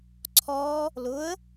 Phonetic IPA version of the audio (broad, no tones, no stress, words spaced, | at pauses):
ǀʰɔ | lʊə̯